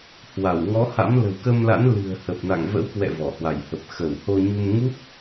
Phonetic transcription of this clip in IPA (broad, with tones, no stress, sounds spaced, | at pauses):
h w a˧˩ w ŋ ɔ˨˦ h a̰˧˥ m l ə̤˨˩ w k ə˧ m l a̰˧˥ n l ɨ̤˨˩ ə̯ h ə˨˩ p̚ n a̰˧˨ ŋ v ə̰˧˥ w k w ɛ̰˧˨ v ɔ˧˩ h w a˧˩ j h ə˨˩ p̚ x ə˧˩ w h o˧ ɲ u˧ m ŋ u˦˥ p̚